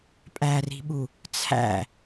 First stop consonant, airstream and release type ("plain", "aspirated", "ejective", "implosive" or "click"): ejective